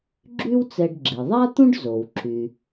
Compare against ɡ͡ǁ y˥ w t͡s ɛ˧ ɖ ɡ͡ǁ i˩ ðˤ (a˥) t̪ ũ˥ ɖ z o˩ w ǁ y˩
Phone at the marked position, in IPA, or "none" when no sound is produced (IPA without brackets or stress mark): a˥